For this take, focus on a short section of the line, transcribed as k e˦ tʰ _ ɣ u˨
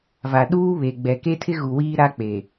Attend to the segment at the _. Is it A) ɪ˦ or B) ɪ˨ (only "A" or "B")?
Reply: A